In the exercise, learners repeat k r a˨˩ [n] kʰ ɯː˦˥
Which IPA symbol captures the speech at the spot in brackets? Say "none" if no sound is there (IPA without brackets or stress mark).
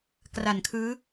n